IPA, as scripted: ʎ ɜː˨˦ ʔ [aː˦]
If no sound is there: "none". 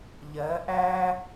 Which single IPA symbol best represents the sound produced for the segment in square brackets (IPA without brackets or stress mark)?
æː˦